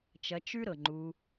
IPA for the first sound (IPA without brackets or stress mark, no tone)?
t͡ʃ